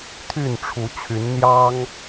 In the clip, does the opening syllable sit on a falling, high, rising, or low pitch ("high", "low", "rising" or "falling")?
falling